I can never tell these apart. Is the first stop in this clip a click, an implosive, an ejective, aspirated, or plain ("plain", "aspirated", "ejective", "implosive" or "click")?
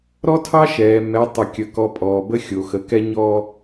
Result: aspirated